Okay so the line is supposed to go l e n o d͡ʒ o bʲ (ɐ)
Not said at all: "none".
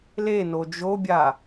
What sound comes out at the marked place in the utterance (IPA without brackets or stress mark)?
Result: a